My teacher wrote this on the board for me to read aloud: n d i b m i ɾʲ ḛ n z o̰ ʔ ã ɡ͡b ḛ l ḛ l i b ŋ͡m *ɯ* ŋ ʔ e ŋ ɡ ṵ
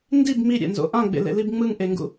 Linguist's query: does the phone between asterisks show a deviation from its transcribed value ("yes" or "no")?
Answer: no